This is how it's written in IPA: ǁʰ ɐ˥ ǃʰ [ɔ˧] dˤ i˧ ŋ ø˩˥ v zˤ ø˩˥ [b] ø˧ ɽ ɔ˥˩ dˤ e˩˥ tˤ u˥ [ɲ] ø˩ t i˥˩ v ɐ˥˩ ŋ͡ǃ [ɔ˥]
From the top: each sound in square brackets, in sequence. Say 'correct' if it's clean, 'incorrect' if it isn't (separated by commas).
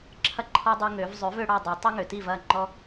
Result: incorrect, incorrect, incorrect, correct